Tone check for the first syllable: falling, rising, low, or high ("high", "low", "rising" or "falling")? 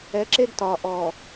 rising